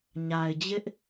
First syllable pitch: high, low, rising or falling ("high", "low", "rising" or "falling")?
low